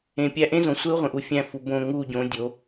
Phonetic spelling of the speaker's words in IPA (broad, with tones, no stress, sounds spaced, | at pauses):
ẽ˨ pʲ æ˦ ʔ ẽ˦ z õ˨ sʷ e˦ u̯ ʁʷ ẽ˨ ʔ u˦ fʲ æ̃˦˨ f u˨ b õ˦˨ ŋ u˦˨ ɟ õ˨˦ dʲ o˨˦